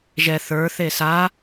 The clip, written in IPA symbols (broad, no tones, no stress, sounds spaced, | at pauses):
ʒ ɛ θ ə˞ θ e s a